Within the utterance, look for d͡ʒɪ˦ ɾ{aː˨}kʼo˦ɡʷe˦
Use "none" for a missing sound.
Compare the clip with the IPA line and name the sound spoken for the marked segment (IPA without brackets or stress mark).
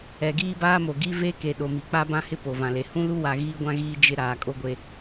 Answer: aː˨